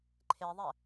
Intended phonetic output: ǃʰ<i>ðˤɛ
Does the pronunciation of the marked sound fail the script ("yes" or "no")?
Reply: yes